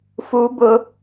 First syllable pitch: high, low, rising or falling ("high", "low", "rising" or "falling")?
high